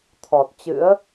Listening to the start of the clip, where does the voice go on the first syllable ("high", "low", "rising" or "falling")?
low